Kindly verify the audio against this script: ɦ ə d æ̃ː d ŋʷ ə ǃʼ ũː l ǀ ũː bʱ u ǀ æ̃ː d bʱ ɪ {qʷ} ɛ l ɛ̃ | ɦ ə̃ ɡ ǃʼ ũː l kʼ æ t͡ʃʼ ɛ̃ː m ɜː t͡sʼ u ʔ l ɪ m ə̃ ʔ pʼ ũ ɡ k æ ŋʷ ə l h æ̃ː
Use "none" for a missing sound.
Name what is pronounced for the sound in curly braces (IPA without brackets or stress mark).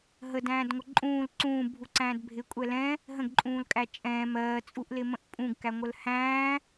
kʷʼ